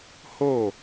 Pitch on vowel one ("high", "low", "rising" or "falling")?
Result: falling